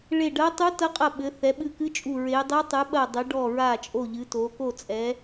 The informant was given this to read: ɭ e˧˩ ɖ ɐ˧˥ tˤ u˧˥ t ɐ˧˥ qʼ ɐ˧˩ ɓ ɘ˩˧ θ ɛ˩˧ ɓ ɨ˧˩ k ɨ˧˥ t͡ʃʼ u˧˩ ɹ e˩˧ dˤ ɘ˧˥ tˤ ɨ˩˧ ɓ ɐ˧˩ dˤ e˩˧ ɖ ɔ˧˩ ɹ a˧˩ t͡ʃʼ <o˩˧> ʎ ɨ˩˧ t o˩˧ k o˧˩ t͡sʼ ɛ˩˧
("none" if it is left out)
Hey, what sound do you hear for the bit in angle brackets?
o˧˩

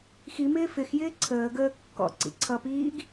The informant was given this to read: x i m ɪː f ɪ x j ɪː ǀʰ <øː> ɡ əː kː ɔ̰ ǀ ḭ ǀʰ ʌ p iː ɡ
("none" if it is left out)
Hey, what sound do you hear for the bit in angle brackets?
əː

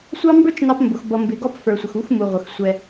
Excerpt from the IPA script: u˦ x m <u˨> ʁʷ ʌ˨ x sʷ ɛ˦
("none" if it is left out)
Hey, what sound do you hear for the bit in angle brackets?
u˨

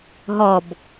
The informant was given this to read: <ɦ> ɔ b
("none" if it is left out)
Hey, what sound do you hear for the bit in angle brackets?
ɦ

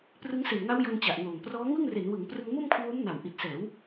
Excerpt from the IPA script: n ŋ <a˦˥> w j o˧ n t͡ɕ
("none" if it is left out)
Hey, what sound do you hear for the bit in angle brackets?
a˦˥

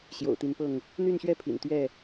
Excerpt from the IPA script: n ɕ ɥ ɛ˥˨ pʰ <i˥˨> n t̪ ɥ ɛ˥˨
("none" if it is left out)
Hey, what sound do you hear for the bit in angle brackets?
ḭ˨˩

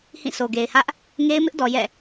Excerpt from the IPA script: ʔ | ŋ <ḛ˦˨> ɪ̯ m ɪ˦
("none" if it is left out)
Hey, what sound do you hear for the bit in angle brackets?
e˦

